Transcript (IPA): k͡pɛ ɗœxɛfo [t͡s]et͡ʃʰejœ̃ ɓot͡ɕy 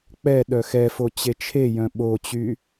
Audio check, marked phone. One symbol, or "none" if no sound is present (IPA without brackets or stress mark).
t͡ɕ